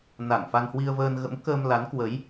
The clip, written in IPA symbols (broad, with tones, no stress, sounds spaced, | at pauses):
n a˧˩ ŋ f a˧ n h w i˧ ə̯ v əː˧ n ɣ ə̰˧˥ m k əː˧ m l a˨˦ n k w ə˨˦ j